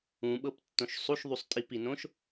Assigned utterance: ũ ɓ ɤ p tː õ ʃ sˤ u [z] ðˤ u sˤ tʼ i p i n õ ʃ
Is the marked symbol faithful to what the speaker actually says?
no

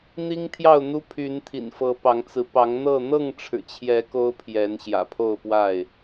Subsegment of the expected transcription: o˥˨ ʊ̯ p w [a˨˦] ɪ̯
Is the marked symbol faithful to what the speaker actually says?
no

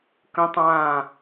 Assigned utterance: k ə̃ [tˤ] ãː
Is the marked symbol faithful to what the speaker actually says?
yes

